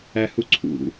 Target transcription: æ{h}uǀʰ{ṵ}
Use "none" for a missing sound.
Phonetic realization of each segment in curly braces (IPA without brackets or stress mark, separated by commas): h, ṵ